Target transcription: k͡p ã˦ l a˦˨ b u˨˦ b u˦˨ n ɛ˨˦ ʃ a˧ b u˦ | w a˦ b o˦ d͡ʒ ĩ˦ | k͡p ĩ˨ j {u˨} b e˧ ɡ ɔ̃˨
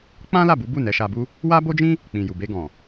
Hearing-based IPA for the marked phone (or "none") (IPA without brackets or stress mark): u˨